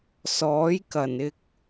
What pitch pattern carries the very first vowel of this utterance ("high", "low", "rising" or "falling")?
rising